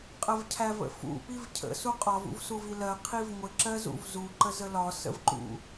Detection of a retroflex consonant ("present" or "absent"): absent